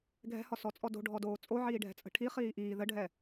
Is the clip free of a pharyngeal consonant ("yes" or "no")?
no